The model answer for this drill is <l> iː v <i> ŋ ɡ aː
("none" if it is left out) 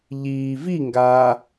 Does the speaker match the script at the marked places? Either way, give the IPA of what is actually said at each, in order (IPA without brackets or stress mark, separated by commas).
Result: ʎ, i